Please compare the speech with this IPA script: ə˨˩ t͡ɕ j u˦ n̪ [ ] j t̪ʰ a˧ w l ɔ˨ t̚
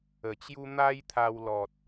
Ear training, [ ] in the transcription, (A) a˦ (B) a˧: A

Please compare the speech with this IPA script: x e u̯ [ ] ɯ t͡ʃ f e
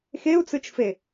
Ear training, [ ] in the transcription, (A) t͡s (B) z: A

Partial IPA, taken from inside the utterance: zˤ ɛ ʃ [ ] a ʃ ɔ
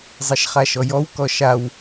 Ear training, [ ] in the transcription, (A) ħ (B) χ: B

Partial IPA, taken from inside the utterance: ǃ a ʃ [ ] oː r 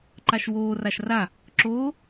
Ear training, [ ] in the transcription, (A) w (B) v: A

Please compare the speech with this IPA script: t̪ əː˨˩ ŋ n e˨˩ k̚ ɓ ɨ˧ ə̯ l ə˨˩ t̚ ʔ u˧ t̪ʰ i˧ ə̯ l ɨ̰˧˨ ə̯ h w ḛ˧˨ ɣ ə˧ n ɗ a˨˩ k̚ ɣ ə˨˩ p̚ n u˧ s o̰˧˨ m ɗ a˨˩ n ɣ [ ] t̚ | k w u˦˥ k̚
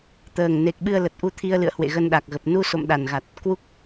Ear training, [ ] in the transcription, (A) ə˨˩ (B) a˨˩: B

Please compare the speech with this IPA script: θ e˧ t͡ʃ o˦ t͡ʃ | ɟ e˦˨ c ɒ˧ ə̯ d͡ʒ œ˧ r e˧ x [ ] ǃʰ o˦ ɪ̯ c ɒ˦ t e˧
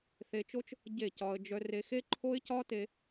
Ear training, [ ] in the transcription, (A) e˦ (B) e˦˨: A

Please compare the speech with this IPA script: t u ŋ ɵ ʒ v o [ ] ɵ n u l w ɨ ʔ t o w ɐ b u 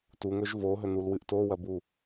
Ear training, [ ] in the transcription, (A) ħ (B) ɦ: B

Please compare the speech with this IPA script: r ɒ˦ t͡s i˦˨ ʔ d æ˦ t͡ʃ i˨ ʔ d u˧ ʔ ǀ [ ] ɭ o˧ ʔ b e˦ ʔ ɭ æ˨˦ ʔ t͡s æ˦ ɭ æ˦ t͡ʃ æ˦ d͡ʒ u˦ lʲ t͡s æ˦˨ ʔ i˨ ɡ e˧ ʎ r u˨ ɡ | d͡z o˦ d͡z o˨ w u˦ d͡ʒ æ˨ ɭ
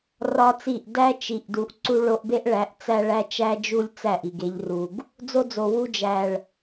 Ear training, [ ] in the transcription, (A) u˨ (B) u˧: B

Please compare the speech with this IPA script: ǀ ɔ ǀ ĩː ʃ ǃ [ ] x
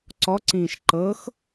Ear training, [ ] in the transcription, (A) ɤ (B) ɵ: A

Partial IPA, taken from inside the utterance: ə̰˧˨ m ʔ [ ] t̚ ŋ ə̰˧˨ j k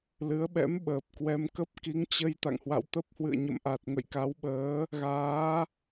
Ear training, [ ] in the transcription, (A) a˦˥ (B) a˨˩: B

